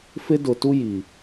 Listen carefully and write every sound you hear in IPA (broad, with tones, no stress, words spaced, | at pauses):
fɪ˦dʊ˨tu˦ji˨